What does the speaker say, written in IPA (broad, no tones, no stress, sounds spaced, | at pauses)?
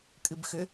kʼ ɨ b x ʏ